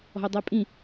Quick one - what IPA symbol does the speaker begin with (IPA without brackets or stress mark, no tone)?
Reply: ɔ̤